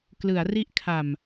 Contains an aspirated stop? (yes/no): yes